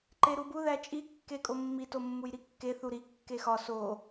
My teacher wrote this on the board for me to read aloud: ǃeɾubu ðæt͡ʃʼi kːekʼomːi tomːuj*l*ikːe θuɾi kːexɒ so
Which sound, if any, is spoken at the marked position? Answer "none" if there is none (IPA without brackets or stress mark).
ɾ